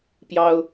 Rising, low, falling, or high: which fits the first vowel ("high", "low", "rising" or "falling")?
high